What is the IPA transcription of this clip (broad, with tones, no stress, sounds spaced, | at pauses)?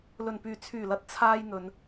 l ɵ˨˩ n p yː˨˩ t͡sʰ yː˨˩ l ɐ˨ t̚ t͡sʰ aː˧ j n̪ ɵ˨˧ n